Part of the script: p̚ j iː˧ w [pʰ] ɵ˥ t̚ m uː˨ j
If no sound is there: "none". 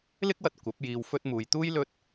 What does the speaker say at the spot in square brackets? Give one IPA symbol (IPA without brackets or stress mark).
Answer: f